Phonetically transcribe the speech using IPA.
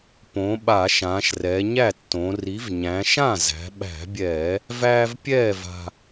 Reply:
p õ˩˧ ɓ a˧˩˧ ʃ ãː˩˧ ʃ r ɛː˩˧ ɲ æ˥˩ tː õ˩˧ r i˨˥ v ɲ æ̃˩˧ ʃ ã˥˩ z æ̤˩˧ ɓ æ̤˧˩˧ bʲ ɛː˧˩˧ | v æː˦ v pʲ ɛː˥˩ v a̤˨˩

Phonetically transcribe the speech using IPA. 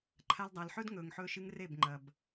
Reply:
ǃʰ a˧ l dˤ a˨ l ħ ɵ˦ d ŋ ɵː˨ ŋ ħ ɵː˦ ʃ ɨ˦ ŋ r e˦˨ b ŋ͡ǃ ɐ˨ b

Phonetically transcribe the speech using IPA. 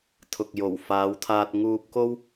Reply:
t̪ʰ ʊ˨ k̚ j o˨˩ w f aː˨˧ w t̪ʰ aː˧ t̚ ŋ uː˧ p̚ k o˥ w

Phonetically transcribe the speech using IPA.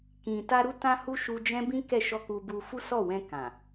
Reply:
k ĩ˨ t a˧ ɾ u˧ t ã˧ h u˧ ʃ u˧ d͡ʒ ɛ̃˦ b ĩ˦ k ɛ˦˨ ʃ ɔ˧ k u˧ b u˧ f u˦ s ɔ˦˨ w ɛ̃˧ k ã˨

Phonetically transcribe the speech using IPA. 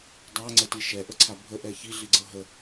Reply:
dˤ a ŋ͡ǀ ə t i ʃ ɛ ʔ ə ǀʰ a bʱ ə ʔ ɛ ç i ɮ i ɡ͡ǀ ɤ ɦ ə

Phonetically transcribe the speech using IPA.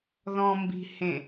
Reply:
ð ɔ̃ m b i̤ h ẽ

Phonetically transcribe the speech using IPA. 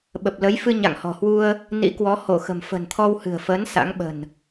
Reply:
ɓ ə˨˩ p̚ l ə˨˦ j f ɨ˧ ɲ a̰˧˨ ŋ h ɔ̤˨˩ h w u˧ ə̯ | n ḭ˧˥ k w ɔ˨˦ h o˧˩ x ə̤˨˩ m f ə̤˨˩ n t̪ʰ ɔ˧ w h ɨ̤˨˩ ə̯ f əː˨˦ n s a̰˧˥ ŋ ɓ ə̤˨˩ n

